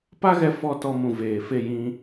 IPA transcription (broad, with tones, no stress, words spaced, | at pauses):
pa˦ɣɛ˧ fɔ˦˨tɔ˧mũ˨ veː˨fe˦˨jĩ˧